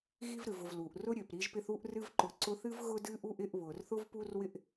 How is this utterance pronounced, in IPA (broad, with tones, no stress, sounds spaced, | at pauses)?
ɣ i˦ v ɾ ɨ˩ v ʊ˨ v l u˩ ʔ r ʊ˦ ɾʲ ø˩ p ɾ i˦ ʒ p ɪ˦ θ u˥ ʔ r ɨ˦ v ǃ ʊ˨ ǀ ʊ˦ θ ɨ˥ v ɣ ʊ˥ d ɨ˥ ʔ u˥ ʔ ɪ˦ ʔ β ʊ˩ r θ ʊ˥ v p u˥ r w ɪ˥ ʔ